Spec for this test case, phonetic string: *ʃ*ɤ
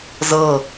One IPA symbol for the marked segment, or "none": z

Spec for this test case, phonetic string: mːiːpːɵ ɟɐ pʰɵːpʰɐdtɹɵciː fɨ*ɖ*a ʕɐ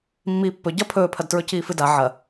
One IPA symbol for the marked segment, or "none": d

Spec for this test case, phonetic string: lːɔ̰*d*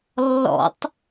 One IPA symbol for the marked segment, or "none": tˤ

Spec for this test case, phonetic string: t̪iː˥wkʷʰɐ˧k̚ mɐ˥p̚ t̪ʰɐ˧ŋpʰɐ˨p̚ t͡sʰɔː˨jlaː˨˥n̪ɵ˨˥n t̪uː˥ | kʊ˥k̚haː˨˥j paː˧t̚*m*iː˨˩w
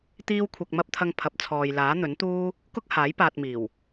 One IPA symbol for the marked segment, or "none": m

